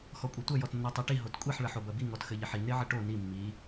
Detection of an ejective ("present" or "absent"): present